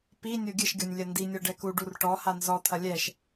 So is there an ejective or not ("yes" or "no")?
no